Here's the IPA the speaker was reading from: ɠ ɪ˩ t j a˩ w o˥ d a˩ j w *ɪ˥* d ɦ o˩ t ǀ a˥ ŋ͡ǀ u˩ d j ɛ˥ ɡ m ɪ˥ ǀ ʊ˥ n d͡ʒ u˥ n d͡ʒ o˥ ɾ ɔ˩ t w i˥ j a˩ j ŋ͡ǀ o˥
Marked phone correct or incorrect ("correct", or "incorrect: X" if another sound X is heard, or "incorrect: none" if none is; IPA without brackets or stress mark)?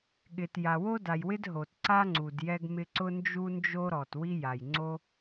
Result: correct